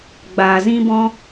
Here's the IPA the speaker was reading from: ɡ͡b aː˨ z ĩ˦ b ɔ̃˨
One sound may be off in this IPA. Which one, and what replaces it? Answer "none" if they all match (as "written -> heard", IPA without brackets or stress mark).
ɔ̃˨ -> ɔ̃˦